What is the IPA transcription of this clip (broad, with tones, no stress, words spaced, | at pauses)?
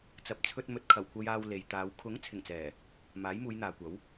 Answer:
t͡sɐ˨p̚t͡sʰɵ˧t̚ mɵ˨t̚kʰɐ˨˩wkʷɐ˧j aː˧w le˨jt̪aː˨˧w kʰʊ˨˥ŋ t͡sʰɪ˨˩ŋt͡sɛː˨˩ | maː˨˥jmuː˨˧jn̪aː˨kʷɐ˨˥w